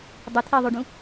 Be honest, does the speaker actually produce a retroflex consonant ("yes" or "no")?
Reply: yes